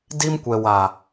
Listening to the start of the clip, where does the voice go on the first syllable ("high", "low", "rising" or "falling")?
high